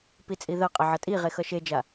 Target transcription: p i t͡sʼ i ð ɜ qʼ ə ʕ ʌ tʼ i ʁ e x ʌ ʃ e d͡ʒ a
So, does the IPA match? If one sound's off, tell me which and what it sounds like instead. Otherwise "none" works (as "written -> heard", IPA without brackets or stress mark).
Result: none